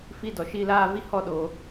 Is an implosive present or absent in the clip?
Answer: present